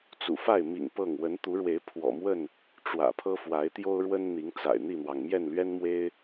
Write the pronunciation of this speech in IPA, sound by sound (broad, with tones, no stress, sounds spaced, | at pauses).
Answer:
t͡s ṵ˨˩ f a˥˨ ɪ̯ m ḭ˨˩ ŋ p ɤ˥˨ ŋ w ə˨˦ n t̪ u˨˦ ɻ w e˨˦ ɪ̯ pʰ w ɔ̰˨˩ m w ə˥˨ n | ʈ͡ʂ w ä̰˨˩ pʰ ɤ˦ f w a˨˦ ɪ̯ t̪ j o˦ ʊ̯ ɻ w ə˦ n n̪ i˨˦ ŋ t͡s a̰˨˩ ɪ̯ n̪ i˥˨ n̪ w ɑ˩ ŋ m j ɛ˥˨ n l ɥ ɛ˦ n m w e˦ ɪ̯